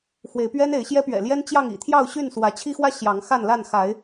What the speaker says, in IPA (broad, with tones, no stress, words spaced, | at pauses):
xwe˨˦ɪ̯pɥɛ˦n e˨˦ɪ̯ɕjɛ˦pɥɛ̰˨˩ljɛ˦n t͡ɕjɑ˥˨ŋḭ˨˩ t̪ʰjɑ˥˨ʊ̯ɕy˥˨nswä˨˦ t͡ɕʰi˦xwä˦ ɕjɑ˨˦ŋxa˥˨nla˥˨n xa˨˦ɪ̯